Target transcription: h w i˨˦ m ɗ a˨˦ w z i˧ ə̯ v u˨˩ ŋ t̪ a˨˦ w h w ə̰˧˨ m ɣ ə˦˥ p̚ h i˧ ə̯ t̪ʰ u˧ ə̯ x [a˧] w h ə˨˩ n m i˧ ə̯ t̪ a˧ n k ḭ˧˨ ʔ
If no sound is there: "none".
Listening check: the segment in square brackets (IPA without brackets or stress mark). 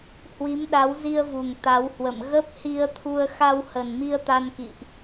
a˧